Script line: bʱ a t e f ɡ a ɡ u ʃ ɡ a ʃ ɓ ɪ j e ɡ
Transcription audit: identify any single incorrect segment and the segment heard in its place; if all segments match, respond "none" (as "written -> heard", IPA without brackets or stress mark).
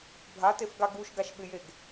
none